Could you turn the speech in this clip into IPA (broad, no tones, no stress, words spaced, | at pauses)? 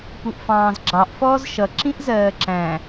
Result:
puʔfɑ̃ːzɡ͡ǁɑʔ fɔːzʃʌ ǁĩʔzɜːǁæ̃